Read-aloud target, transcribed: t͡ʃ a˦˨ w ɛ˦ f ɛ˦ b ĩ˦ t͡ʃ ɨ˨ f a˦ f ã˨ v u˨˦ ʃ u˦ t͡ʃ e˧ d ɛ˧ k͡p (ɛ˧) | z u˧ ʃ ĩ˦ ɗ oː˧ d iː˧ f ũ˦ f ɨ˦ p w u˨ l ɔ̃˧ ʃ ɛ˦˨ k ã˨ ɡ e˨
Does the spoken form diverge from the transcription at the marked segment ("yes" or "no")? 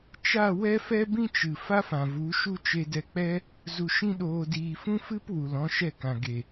yes